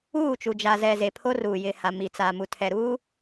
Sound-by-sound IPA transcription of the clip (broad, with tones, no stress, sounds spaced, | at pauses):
uː˦˨ t͡ʃ u˨ d͡ʒ a˨ z ɛ˨ z e˨ pʰ o˦ r uː˨ j ɪ˨ h a˨ m i˨ t͡s aː˨ m u˨ tʰ ɛ˨ ɾ uː˦